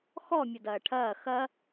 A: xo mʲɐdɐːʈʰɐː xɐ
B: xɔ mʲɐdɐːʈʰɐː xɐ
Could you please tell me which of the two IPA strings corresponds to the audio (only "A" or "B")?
B